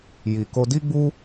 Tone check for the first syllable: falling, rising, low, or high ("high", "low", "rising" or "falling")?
low